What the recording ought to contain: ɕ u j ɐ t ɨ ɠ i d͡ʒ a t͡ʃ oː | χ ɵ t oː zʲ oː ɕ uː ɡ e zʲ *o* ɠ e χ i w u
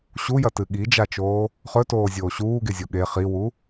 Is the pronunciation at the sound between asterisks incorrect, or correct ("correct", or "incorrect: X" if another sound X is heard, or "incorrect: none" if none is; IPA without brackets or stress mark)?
correct